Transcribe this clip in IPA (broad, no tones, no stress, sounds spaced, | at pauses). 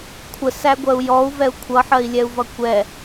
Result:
kʷʰ ə s æ ɡʷ ɜ u̯ j ɔ u̯ v ɛ u̯ kʷʰ ʌ ħ ɜ i̯ lʲ ɛ u̯ v ʌ kʷ ɛ